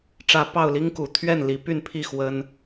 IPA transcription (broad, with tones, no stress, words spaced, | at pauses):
ʈ͡ʂä˨˦ pɑ˥˨ʊ̯li˦ŋku˨˩ t̪ʰɥɛ˥˨n li˨˩py˥˨n pʰi˥˨ xwə˦n